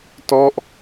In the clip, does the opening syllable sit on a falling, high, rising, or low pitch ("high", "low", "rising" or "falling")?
falling